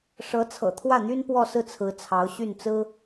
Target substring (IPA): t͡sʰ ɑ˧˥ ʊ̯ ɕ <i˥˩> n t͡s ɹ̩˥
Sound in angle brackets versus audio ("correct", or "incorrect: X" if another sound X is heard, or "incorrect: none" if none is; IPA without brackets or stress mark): incorrect: y˥˩